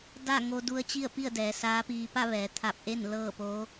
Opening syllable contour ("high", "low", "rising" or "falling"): falling